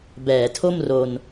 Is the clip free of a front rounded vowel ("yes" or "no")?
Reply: yes